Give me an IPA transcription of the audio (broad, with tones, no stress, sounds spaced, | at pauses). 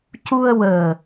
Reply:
c u˧ ə̯ w əː˨˩